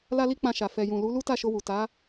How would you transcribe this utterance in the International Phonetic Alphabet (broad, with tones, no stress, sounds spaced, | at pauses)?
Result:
l a˧ l i˧ k͡p ã˧ ʃ a˨ f ɛ˨ j ũ˨ l u˨˦ l u˦ t a˦˨ ʃ o˧ w u˨ t a˨˦